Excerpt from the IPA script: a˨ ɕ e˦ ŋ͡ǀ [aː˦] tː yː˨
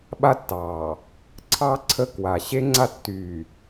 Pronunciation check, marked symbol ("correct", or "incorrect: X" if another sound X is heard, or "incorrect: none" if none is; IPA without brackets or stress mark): incorrect: a˦